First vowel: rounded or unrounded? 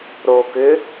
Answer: rounded